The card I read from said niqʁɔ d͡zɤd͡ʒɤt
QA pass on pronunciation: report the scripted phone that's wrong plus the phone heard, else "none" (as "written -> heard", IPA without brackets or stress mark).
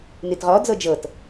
q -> t